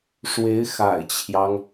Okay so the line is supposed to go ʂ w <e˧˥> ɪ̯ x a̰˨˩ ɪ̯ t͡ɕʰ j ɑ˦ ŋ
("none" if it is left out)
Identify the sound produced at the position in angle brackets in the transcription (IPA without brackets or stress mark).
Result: e˧˥